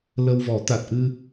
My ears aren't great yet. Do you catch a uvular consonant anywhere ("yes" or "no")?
no